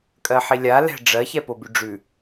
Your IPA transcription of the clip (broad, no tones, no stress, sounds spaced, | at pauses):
kʼ ɜ ħ i lʲ a l ɛ̤ ɖ͡ʐ ɜ ç ɛ p o b ʉ ɖ͡ʐ ʉ